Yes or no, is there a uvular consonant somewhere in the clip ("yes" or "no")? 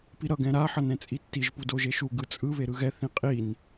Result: yes